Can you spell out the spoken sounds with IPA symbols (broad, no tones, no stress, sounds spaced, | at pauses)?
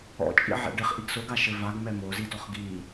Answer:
ɔ̰ t͡ʃʼ ḭ ʕ ɛ̰ ɖ ɘ χ ʔ i ɡ s o ɡ a ʃ ɘ v a ɡ m ɛ m o z i d ɔ χ ɡ i